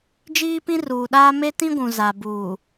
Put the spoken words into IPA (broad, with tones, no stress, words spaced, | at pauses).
d͡ʒiː˦pĩ˦ruː˨ɗaː˦ me˦tĩ˦ɡʷũ˨ za˨buː˨